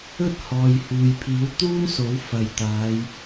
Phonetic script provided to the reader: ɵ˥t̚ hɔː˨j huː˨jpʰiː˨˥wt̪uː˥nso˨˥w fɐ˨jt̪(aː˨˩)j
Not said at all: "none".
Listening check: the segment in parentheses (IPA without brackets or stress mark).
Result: aː˨˧